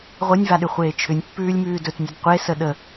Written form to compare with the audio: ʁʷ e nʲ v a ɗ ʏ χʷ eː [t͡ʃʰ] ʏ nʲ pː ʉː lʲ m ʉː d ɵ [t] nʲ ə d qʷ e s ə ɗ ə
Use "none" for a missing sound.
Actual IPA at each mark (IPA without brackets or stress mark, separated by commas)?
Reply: t͡ʃʰ, t